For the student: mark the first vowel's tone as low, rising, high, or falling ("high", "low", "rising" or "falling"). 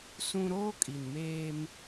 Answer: high